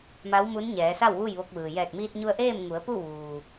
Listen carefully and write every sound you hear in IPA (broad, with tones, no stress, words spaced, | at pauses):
ma˧˥wmu˧˥nɲɛː˩˧sa˥˨w ʋu˥˨jʋo˧k̚ʋɯː˩ jɛː˧˩k̚miː˧t̚ɲu˧ə̯ ʔeː˥˨mŋu˩˧ə̯ pu˥˨ʋuː˩